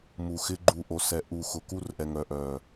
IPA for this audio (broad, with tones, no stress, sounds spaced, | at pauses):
m u˨ x ɪ˦ ɡ͡ǃ u˦ ʔ o˨ s ɛ˨ ʔ u˨ x ʊ˨ k u˦ r ʔ ɛ˨ ŋ œ˨ ʔ œ˨